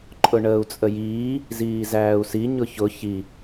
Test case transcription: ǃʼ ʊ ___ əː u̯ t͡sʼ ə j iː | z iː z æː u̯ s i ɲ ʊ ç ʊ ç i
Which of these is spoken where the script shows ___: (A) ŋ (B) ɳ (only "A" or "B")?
B